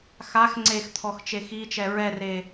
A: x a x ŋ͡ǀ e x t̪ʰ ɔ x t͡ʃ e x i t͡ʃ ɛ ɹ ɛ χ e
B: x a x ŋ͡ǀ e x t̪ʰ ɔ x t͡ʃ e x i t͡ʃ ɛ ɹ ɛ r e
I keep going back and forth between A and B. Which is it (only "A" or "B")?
B